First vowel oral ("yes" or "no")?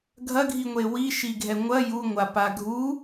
yes